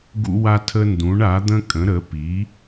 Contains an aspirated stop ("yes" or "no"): yes